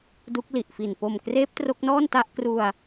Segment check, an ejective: absent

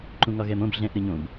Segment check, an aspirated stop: absent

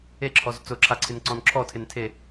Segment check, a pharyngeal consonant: absent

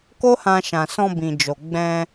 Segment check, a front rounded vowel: absent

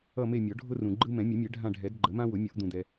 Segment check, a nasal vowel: present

